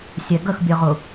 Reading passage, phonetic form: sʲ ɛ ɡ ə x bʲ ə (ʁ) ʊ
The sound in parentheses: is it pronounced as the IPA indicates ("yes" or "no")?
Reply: yes